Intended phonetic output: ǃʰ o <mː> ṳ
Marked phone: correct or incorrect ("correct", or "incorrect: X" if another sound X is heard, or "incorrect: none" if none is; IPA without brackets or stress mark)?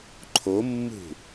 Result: correct